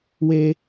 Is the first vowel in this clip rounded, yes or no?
no